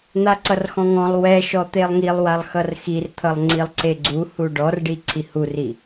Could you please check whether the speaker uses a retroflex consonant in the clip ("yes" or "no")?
yes